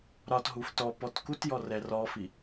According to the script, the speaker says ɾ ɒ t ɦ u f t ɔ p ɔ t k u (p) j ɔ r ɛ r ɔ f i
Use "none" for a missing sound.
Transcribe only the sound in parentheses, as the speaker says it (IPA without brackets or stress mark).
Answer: t